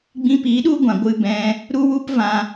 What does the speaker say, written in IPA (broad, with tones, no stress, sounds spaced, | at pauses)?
ɡ͡b ĩ˧ p iː˨˦ ɗ u˦ ɡʷ ã˨ ɡʷ ɨ˧ b ɛ̃˧ | ɾ u˦ w u˦ p v ã˧